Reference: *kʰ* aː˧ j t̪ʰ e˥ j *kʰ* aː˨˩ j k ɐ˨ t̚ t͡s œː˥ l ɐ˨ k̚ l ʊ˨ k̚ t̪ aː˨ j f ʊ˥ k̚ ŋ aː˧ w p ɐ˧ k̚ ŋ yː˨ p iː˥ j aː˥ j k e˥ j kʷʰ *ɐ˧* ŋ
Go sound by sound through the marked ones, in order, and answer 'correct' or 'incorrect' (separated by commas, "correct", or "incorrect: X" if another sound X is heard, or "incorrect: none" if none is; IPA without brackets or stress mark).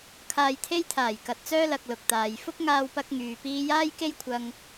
correct, incorrect: t̪ʰ, correct